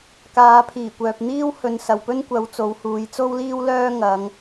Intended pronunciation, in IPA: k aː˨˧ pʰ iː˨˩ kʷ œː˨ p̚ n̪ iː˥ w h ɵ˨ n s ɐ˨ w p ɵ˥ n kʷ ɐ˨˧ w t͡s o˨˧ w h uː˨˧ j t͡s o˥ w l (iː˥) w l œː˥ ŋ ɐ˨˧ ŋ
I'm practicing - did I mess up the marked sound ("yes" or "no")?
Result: no